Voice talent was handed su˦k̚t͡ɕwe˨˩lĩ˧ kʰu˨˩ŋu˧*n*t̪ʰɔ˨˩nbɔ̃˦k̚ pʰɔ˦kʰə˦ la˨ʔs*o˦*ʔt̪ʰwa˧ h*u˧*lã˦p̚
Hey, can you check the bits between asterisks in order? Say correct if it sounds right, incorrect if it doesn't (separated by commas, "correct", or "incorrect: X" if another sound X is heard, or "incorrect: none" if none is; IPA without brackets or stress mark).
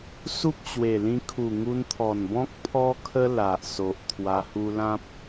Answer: correct, incorrect: o˨, correct